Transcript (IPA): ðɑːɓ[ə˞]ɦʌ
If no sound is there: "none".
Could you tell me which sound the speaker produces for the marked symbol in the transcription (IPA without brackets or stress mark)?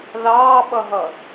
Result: ʌ